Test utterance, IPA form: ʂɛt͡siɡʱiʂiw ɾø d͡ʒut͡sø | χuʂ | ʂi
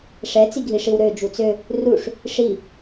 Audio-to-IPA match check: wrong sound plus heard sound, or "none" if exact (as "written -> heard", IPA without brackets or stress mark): χ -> r